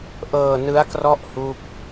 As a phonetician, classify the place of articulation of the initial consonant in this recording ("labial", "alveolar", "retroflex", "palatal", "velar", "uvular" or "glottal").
glottal